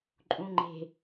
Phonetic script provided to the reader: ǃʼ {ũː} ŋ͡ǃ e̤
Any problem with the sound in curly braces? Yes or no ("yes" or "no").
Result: yes